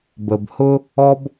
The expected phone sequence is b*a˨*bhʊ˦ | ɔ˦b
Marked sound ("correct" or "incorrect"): incorrect